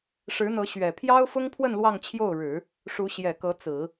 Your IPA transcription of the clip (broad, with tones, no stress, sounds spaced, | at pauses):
ʂ ɻ̩˧˥ n̪ ɤ˧˥ ɕ ɥ ɛ˨˩ pʰ j ɑ˥ ʊ̯ f ʊ˥ ŋ pʰ w ə˥˧ n l w ɑ˥˧ ŋ t͡ɕʰ j o˥˩ ʊ̯ ɻ ɻ̩˨˩˦ | ʂ u˧˥ ɕ j ɛ˨˩ k ɤ˧˥ t͡s ɹ̩˨˩˦